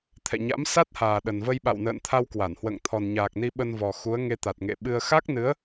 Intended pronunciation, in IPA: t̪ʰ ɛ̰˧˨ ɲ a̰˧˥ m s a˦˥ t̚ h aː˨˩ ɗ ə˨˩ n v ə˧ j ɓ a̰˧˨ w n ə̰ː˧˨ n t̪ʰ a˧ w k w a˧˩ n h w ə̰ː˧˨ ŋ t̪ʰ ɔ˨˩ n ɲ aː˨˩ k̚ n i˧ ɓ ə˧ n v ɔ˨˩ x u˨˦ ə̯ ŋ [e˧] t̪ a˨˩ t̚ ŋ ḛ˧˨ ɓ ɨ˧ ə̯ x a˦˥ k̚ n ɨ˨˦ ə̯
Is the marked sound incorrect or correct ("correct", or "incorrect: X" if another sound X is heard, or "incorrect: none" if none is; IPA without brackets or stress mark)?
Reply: correct